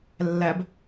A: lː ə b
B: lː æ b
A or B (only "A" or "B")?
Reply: B